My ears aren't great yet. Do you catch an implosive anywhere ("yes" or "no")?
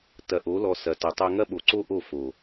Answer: yes